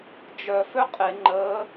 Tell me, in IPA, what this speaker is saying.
d͡ʒ œ f ø qʼ e ŋ͡ǃ əː

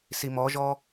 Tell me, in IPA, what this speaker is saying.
s i m ɔ ʒ ɔ

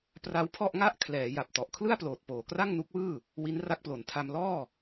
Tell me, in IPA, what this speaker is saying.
p r a˦˥ w pʰ ɔ˥˩ ʔ ŋ a˥˩ ʔ kʰ l ɛː˩˦ j a˨˩ p̚ t ɔ˨˩ ʔ kʰ l ɯ˥˩ a̯ p l oː˨˩ t̚ p oː˨˩ k r a˥˩ ŋ n u˦˥ k̚ w ɯː˥˩ | w i˦˥ n r a˦˥ k̚ p l o˨˩ n tʰ a˧ m l ɔː˥˩

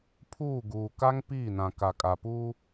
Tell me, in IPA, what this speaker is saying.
pʰ uː˦˨ ɡ uː˨ k a˦ ŋ p iː˦˨ n ã˨ k a˨ kʼ a˨ p uː˦

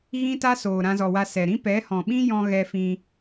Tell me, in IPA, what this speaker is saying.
ɣ ĩ˦ t a˦ s oː˨ ɾ ã˧ z ɔ˨ w a˧ s ɛ˨ ɾ ĩ˦ p ɛ˨˦ h ɔ̃˨ ɓ ĩ˦ j ɔ̃˧ ɣ ɛ˧ f ĩ˧

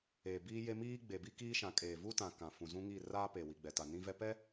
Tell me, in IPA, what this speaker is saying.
eː˨ b iː˦ j e˦ m iː˦ ɡ͡b e˨ b i˦ k iː˦ ʃ ã˨˦ kʼ eː˨ v u˦ t ã˨ k ã˨ f ũ˨ z ũ˦ ŋ i˦˨ r aː˦ p e˨ w i˨ ɡ͡b ɛ˨ t a˨ n ĩ˦ v ɛ˦ p ɛ˦

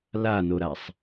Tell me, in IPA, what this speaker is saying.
l a n o ɾ a sˤ

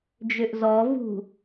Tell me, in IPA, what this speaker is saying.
d͡ʒ ø ʔ z ɔ v ṳ

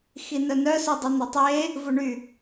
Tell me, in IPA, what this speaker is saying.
x i n œ n œ s u dˤ y n̪ o tˤ e | v u ɳ y

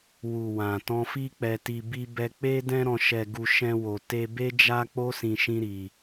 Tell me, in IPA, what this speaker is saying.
w u˨ w ã˨ t ɔ̃˧ f i˦ k͡p ɛ˧ t i˧ b i˦ b ɛ˧ k͡p e˦ d ɛ̃˦ ɾ ɔ̃˧ ʃ ɛ˧ ɡ u˧ ʃ ɛ̃˦ w o˧ t e˧ b e˦ d͡ʒ a˦ k͡p o˦ s ĩ˧ ʃ ĩ˦ ɾ i˧

